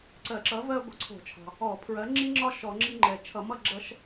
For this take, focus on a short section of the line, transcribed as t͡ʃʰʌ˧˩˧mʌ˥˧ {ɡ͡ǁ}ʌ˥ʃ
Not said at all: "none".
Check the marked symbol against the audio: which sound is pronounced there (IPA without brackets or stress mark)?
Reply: ɡ͡ǁ